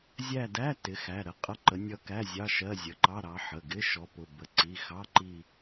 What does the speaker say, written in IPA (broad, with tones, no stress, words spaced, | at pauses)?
zʲæ˦˨dæ˧˥˧ tɪ˩˧˩xæ˩˧˩ɾə˨˦ qʼʌ˧˥˧ǃə˨˦nʲʌ˦˨kæ˧˥˧ zʲɑ˧˥˧ʃɜ˧˥˧ zʲə˩˧˩ǃɑ˧˥˧ɾɑ˨˦ ħə˩˧˩ɡɪ˧˥˧ ʃɔ˨˦pʊ˩˧˩ bə˩˧˩ǀi˩˧˩xɑ˧˥˧ǃi˦˨